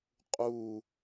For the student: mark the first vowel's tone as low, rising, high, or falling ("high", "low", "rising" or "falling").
falling